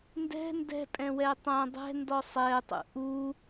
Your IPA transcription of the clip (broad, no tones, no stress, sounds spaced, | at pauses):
n d ɛ̤ n d ɛ̤ pʼ ɛ̃ w ɛ tˤ æ̃ dˤ ɛ̤ n d ɔ sˤ ɛ tˤ ṵ ʔ u